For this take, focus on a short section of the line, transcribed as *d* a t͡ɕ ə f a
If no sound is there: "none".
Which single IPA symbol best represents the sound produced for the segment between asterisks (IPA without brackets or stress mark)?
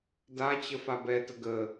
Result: d